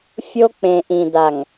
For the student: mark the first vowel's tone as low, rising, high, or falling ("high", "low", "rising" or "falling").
high